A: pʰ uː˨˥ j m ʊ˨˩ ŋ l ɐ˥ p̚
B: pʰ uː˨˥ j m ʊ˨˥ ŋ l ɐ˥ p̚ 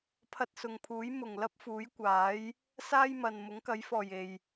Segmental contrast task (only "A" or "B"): A